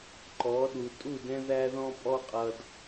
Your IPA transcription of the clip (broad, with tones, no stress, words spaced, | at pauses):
ǃɔ˨˦ɗu˨ tʼu˦˨dɛ̃˦ ðæ˦ðɔ̃˦ pʼɔ˦qʼʌ˨d